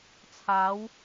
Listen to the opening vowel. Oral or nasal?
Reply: oral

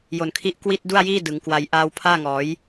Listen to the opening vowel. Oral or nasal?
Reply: oral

